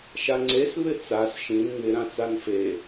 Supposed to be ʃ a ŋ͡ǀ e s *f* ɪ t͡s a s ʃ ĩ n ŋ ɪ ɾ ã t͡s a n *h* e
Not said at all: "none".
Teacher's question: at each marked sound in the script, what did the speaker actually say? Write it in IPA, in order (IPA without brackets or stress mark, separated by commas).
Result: β, f